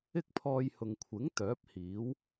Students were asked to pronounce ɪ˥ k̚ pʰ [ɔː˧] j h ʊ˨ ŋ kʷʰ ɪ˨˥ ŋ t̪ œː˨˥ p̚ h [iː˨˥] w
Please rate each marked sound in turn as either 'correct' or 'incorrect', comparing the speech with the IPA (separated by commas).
correct, correct